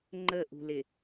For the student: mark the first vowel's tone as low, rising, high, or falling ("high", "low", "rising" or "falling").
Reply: falling